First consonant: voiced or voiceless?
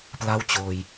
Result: voiceless